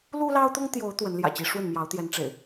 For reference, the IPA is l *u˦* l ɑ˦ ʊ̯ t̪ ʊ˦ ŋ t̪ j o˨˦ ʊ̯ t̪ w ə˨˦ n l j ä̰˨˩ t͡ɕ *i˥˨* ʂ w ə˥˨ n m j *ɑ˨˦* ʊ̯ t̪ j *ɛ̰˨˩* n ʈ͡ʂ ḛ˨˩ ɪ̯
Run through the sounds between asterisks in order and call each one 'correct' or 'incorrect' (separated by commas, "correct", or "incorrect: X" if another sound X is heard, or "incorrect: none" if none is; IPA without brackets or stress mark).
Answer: correct, incorrect: i˨˦, correct, incorrect: ɛ˨˦